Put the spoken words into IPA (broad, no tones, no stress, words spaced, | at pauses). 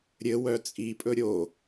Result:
ɾʲɘwœ t͡sʼipʼɵ ɾʲo